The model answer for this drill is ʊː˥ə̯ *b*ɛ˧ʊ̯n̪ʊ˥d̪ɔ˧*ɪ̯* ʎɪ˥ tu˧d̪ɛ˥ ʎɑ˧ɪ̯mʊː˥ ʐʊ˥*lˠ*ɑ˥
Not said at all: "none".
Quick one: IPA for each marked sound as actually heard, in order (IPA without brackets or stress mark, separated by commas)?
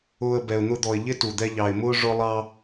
b, ɪ̯, lˠ